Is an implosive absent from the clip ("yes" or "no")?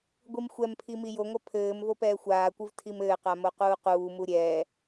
yes